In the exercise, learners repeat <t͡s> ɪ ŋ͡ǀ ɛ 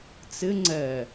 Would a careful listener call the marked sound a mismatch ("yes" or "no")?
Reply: no